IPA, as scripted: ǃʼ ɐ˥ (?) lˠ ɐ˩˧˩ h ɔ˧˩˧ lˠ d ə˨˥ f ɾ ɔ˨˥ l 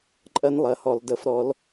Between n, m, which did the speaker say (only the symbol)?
n